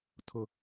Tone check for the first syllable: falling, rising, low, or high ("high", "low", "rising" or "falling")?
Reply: low